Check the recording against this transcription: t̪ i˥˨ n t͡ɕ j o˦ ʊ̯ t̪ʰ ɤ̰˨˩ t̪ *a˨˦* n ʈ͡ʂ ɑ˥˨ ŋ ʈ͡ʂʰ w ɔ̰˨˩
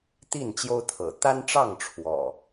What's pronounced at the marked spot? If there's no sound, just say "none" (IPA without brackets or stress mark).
a˦